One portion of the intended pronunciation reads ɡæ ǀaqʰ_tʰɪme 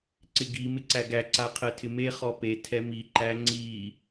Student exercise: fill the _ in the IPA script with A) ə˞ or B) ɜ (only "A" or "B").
B